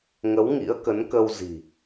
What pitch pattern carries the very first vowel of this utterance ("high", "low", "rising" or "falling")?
rising